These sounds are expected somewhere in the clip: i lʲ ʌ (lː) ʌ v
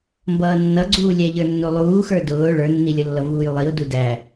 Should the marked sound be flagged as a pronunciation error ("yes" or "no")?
no